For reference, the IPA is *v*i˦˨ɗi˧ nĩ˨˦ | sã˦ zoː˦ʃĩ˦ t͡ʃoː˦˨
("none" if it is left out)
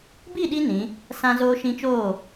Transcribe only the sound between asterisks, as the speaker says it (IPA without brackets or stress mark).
b